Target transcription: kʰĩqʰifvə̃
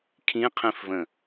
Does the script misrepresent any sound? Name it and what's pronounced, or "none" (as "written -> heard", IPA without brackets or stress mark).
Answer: i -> ĩ